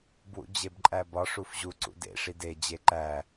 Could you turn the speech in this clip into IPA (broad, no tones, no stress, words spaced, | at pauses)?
bwṵd͡ʑebǃʼæbɒ ʂufʑu ǀṵdḛ ʂide d͡ʑeǃæ